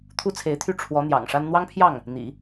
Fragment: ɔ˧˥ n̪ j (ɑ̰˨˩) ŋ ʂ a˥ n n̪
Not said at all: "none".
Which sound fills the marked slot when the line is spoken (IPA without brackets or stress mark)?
ɑ̰˨˩